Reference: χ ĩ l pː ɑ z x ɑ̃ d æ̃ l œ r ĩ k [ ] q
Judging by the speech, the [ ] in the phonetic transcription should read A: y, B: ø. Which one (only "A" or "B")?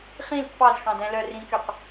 B